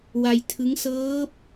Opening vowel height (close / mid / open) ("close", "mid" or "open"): open